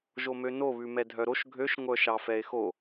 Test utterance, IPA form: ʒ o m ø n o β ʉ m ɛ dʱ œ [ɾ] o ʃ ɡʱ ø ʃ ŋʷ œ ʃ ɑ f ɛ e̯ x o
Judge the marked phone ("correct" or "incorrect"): correct